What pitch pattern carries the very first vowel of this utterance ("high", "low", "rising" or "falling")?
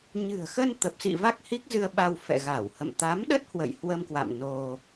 low